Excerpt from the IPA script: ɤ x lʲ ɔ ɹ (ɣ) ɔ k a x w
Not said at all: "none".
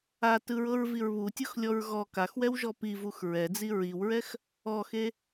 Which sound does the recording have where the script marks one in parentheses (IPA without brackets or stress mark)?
ɣ